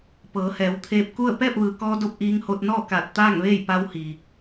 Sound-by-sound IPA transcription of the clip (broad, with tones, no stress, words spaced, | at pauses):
pɤː˩˧hɛː˩˧wt̪ʰeː˧p̚ku˥˨ə̯ pɛː˥˨p̚ʋɯː˩kɔː˧do˧p̚ ʔiː˧ŋho˧t̚ nɔː˥˨ kaː˧˩t̚t̪aː˥˨ŋʋeː˥˨j pa˧whi˩